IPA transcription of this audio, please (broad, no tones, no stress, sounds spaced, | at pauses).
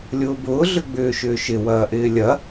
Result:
lʲ ʊː b ʊː ɮ ʏ ɡ͡b ʏː ʃ ʏː ʃ ɪ w ɐː ʔ ɪː lʲ ɐ